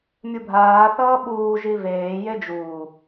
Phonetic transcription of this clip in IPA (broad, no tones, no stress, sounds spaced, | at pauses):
mʲ u bʱ aː θ ʌː ɓ uː ʒ i v eː j e d͡ʒ uː